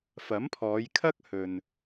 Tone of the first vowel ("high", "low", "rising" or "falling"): rising